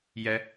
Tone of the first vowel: rising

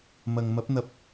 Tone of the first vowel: low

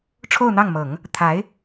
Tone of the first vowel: falling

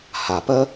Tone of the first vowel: low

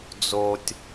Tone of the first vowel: low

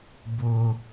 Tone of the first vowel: high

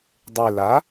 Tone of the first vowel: low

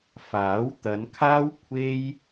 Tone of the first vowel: rising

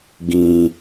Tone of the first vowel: low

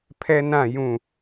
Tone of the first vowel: high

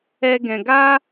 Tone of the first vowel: high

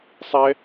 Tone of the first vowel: high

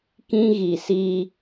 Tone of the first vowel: high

